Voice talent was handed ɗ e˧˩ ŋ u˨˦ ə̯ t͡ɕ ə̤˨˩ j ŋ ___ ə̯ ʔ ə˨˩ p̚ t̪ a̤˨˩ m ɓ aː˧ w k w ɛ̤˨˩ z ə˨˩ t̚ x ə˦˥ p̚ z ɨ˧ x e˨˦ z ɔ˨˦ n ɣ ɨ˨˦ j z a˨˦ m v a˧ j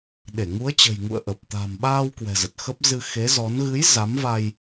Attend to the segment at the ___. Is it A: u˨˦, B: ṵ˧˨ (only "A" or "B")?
B